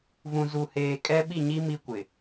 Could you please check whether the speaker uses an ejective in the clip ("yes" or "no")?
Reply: yes